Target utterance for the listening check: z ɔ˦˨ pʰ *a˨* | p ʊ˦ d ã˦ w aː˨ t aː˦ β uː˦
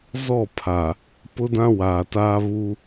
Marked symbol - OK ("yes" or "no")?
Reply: yes